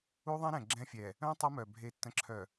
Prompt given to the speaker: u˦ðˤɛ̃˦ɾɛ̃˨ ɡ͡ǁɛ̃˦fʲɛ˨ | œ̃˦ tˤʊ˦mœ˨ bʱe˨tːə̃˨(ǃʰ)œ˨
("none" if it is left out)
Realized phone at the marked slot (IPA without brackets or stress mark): ǁʰ